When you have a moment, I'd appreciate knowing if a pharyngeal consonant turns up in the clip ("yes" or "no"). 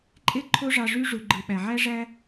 yes